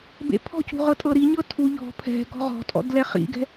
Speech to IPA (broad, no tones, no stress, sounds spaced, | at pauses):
b ḛ pʰ ɔ̤ c ṳ ʁ ɤ tʼ ɤ ɾ i ɲ ɤ tʰ u ʎ ɔ̤ pʰ ɛ̤ ɡ ɔ̤ ʁ ɔ̤ tʼ ɔ̰ d l ɛ χ ḭ ɡ ɛ̤